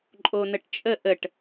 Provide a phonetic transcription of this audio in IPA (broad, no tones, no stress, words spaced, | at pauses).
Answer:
ǃʼonəʈt͡ʃʼə ʔəʈ